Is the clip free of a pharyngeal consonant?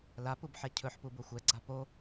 no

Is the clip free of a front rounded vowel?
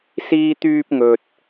no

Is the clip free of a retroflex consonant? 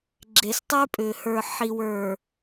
yes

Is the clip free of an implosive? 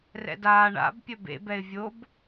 yes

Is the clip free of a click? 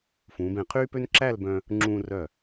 no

